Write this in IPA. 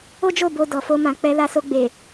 o˦ d͡ʒ o˦˨ b o˧ d ɔ˨ f o˧ m ã˨ k͡p ɛ˧ l a˧ s o˧ ɡ͡b e˨

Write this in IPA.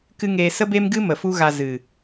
k ɨ˦ ŋ eː˧ s ə˦ b e˦ m ɡ ɨ˦ m ə˨ f u˦ ɣ a˧ z ɨ˨

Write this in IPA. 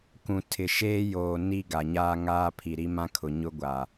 k ũ˨ tʰ ɪ˨ ʃ eː˦ j oː˨ n i˦ ɡ a˨ ɲ aː˦ ŋ aː˦ pʰ i˨ ɾ i˦ m ã˦ kʰ ʊ˨ ɲ ʊ˦ ɡʷ a˨

